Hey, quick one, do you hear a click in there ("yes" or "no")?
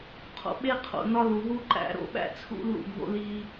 yes